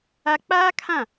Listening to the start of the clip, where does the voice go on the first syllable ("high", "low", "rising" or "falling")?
high